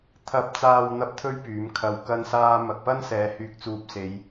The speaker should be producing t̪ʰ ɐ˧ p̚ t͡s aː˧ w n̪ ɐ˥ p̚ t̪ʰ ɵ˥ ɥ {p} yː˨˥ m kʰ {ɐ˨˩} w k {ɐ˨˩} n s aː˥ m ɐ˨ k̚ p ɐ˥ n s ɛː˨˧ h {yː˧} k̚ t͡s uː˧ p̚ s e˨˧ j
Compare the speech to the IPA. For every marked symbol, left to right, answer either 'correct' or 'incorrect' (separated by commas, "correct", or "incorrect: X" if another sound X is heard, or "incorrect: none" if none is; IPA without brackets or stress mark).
correct, incorrect: ɐ˧, incorrect: ɐ˥, correct